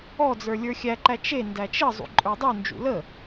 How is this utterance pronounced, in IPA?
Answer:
ɔd͡zə˞ lʲə˞xʲæǃæ t͡ʃe ndæt͡ʃə zˤṵǃʼə˞dˤu nd͡ʒṵlə

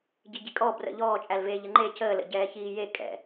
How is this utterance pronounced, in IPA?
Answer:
ɟiɟikʼɔ brə̰ ʎɔːt͡ʃʼælveː ʎəŋ͡ǃe cʰəːlə̰ ɟɛːçiːje kʼɛ̰

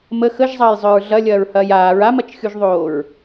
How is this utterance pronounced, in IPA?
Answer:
mə xəʒzˤɐːjzˤœɹ ɮɐlʲɐːɹhɐːj aːɹ amɐt͡ʃxʲuʒðˤoːɹ

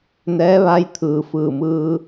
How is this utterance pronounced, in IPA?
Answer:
nɛː˧˥ʋa˧˥j t̪ʰɯː˩fɯː˧˩mɯː˧

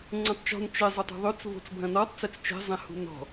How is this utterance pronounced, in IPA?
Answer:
ŋ͡ǀɛ̃tˤt͡ʃɔ̤n t͡ʃɛ zˤutˤṳðˤøt͡s vo̤t͡sbʱɐ̃nɔtˤ t͡sɛt͡st͡ʃɛ̤ zˤɛ̃hṳnɔ̤

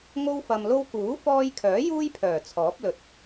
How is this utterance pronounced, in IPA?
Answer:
ŋo˥w fɐ˧mlo˥w kuː˨˥fɔː˧jkʰœː˨˥ juː˥jpʰœː˨˩ t͡sʰɔː˨˥p̚lɵ˨t̚

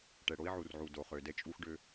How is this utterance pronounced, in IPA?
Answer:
ʈɛ˨ɽo˦i̯ʕu˨rʕu˨ do˨χø˨dɛ˦ t͡ʃʼu˦xɖø˦

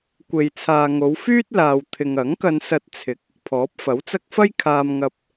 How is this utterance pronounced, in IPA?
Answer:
kʷe˨jt͡sʰaː˨ŋo˨˧wfyː˥t̚ laː˧wt̪ʰɪ˧ŋ ɐ˨˥ŋkɐ˧nsɐ˧t̚ t͡sʰɪ˨˥k̚ | pʰɔː˨˥p̚fɐ˨˥wt͡sɐ˥k̚ fɐ˥jkʰaː˧mŋɐ˧p̚

